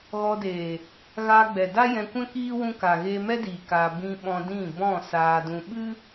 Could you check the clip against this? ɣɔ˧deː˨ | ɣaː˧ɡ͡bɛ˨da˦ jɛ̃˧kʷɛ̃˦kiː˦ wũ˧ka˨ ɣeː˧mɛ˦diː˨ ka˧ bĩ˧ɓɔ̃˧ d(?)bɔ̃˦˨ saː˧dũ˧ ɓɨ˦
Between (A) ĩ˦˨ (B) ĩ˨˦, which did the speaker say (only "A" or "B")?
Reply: A